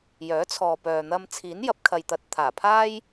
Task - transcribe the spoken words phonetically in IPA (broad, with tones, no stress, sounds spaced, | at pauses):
j œː˨˥ t͡sʰ ɔː˨ p œː˨ n̪ ɐ˧ m t͡sʰ iː˨˥ n j ɐ˨˥ p̚ kʰ ɐ˨ j t̪ ɐ˨ t̚ t̪ʰ aː˨˩ pʰ aː˥ j